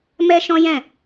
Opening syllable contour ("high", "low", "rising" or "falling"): high